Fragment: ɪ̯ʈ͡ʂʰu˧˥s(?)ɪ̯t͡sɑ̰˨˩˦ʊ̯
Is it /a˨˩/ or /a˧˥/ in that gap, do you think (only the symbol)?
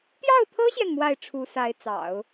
a˧˥